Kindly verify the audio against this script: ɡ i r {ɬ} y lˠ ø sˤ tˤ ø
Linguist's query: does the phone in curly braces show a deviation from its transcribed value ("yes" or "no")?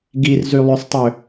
yes